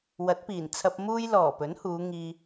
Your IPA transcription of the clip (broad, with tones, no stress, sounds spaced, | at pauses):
w ɐ˨˥ t̚ p iː˨˩ n t͡sʰ ɐ˧ p̚ m uː˧ j l ɔː˨˩ p ɵ˨˥ n h uː˨˧ ŋ iː˧